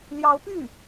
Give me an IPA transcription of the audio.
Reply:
ljɑ˧˥ʊ̯py˥˩

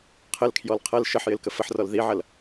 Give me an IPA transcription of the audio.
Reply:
qʰəlkʰjɔl qʰɐl ʃəħjɪl kəfəħrɔl ðiʕɐl

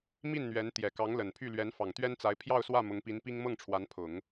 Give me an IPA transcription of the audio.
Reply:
mi˥˩nn̪ɥɛ˧˥nt̪jɛ˨˩kɑ˧˥ŋ lə˨˩npʰy˥˩ lɥɛ˧˥nfɑ˨˩ŋt̪ɥɛ˥nt͡sa˧˥ɪ̯ pʰjɑ˥˧ʊ̯swä˥˩ mʊ˧˥ŋpi˧˥n pi˥ŋmɤ˥˩ŋʈ͡ʂʰwa˧˥npʰʊ˨˩˦ŋ

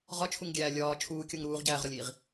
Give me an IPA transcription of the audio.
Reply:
ʁɒt͡ʃʰuŋɡʲæː lʲɒː t͡ʃʰuːkʲoŋ ɾuːʁɟæːʁɾɒlʲiːʁ

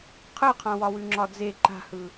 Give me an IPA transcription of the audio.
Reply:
qʰɯqʰãwɒwʉ ŋ͡ǁɒd͡ze ǃa̤hɯ

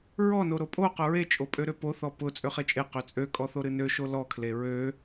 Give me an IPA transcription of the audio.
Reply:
ɹɔno ɾopʼoqʊ ɹet͡ʃʼopʼøɾø poθɔ pʊ t͡sʼøχet͡ʃʼe qøt͡sʼø kʼɔθoɾɨnø ʃolɔkʰle ɹø

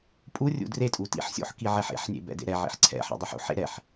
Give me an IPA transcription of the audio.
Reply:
pʼurʲṵ dretʼu tḭħsʲo̰ħ kiʕɛħḛħnʲḛ bɛ̰dḛɾɛʕḭħ ǀʰɛ̰ħɛ̰ dˤoħṵħḛ ɾɛħ

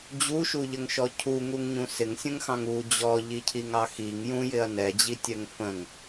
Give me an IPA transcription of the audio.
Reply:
d͡ʑuʃuʎəŋʃɔ cʰuŋuŋɲũ sɪŋsʲə̃ŋxɑ̃ŋ u d͡ʑɔʎicʰiŋɑ xiŋ jũjɪɐ̯ nɛd͡ʑitʲɛŋ fə̃ŋ

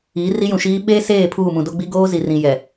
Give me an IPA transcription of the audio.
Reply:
iː˨˦ri˦jũ˨ʃiː˦ ɓeː˦seː˦˨ pʰuː˦˨mũ˨do˦ɡ͡bi˦ ɡoː˦zi˨rĩ˨ jɛ˨

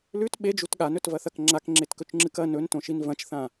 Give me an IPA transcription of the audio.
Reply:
lʉt ɓed͡ʒut ɠanɵtvɐθɐk ŋ͡ǁakŋ͡ǁetkɵt͡ʃŋ͡ǁɨk ɐ nɵntõʃin vɐ̃t͡ʃθã

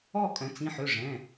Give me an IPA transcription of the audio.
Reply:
ɔ˥˧ kʼœ̃˩˧t͡sĩ˩˧˩ħø˩˧˩ ʐɛ̃˩˧˩

